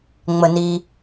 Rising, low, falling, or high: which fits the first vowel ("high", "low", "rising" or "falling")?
low